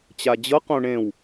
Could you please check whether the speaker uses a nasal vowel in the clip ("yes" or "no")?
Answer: yes